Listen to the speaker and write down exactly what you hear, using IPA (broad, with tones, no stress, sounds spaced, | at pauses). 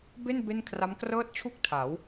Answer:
b e˥˩ n b e˥˩ n kʰ r a˦˥ m k r ɤː˥˩ t̚ t͡ɕʰ u˥˩ k̚ tʰ a˩˦ w